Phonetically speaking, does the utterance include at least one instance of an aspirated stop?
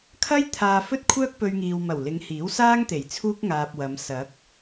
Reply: yes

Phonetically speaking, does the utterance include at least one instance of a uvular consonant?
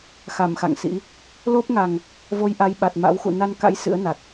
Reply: no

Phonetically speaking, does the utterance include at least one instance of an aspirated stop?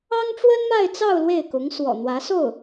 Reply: no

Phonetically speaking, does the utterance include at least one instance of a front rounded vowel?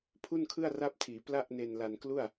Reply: no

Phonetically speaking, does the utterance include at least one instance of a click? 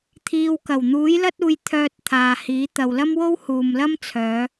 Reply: no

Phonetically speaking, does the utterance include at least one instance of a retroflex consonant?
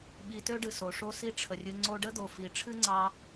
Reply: yes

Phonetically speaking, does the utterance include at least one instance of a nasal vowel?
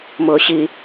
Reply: no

